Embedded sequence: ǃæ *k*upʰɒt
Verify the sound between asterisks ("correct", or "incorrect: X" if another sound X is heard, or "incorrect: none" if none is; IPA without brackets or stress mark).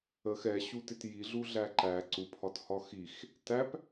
incorrect: ǀ